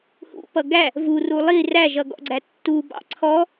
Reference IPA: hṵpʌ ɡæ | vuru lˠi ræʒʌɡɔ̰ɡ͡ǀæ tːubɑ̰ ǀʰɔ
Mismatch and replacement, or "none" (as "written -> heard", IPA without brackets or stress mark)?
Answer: none